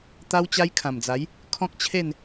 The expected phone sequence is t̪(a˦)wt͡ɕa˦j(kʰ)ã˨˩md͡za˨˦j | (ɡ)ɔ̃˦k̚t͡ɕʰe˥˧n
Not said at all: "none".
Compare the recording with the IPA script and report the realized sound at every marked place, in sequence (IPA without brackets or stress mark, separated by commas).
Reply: a˦, kʰ, kʰ